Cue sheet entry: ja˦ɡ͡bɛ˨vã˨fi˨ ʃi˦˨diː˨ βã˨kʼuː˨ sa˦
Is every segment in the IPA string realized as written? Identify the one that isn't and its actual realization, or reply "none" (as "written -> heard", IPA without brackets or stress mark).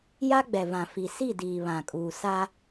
ʃ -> s